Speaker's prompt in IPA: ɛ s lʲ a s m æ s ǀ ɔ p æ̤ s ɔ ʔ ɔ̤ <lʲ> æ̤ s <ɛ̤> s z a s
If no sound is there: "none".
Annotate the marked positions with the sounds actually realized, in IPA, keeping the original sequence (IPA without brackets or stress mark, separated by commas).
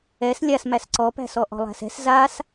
lˠ, ɛ̤